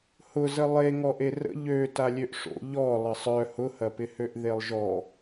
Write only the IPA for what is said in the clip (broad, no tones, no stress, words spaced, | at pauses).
hʊzə lˠe ŋɔʔerə̰ ʎø talʲøʔʂo̰ ʎɔ lˠəsˤœ hʊhɐpɪhøʔ ðelˠʒɔ